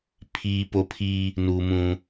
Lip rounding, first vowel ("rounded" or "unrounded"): unrounded